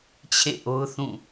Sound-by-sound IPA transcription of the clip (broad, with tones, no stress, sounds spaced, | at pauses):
t͡ɕʰ ḛ˦˨ ʔ o˦ ʊ̯ θ ũ˦˨